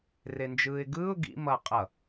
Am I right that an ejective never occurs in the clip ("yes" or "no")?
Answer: no